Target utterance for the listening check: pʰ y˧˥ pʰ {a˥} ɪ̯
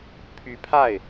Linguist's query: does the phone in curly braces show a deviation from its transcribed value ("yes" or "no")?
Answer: yes